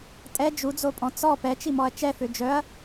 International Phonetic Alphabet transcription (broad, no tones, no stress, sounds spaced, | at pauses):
tʼ ɛ d͡ʒ u d͡z o pʼ ɔ̃ t͡s ɔ p ɛ t͡ʃ i m ɔ ɐ̯ t͡ʃ ɛ f ø d͡ʒ œ ɐ̯